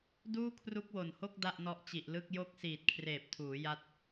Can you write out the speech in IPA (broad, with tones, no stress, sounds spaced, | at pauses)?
d uː˥˩ kʰ r u˦˥ k̚ w o˨˩ n h o˥˩ k̚ d a˥˩ ʔ n ɔ˦˥ ʔ t͡ɕ i˨˩ ʔ l ɯ˥˩ k̚ j o˥˩ k̚ s iː˨˩ t̚ kʰ r eː˨˩ p̚ tʰ uː˩˦ j a˦˥ t̚